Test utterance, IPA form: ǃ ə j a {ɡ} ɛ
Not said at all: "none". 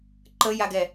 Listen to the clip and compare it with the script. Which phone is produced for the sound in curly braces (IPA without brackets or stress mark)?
ɡ